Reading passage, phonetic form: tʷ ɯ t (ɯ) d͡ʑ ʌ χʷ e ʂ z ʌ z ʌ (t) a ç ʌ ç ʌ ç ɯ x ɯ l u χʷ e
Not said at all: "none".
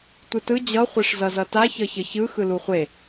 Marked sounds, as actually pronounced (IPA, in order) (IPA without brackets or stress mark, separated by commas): ɯ, t